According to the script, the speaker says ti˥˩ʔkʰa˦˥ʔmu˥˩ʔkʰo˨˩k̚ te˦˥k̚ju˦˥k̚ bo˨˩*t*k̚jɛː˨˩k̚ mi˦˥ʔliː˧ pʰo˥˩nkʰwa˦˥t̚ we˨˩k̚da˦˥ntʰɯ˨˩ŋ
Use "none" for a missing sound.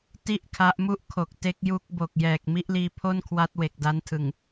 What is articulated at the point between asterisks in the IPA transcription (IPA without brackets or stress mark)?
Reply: none